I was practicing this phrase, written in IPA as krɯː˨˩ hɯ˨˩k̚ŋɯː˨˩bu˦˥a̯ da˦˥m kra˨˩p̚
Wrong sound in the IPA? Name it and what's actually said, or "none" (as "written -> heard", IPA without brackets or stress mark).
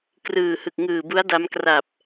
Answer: none